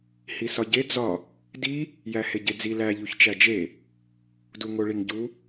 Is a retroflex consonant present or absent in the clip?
present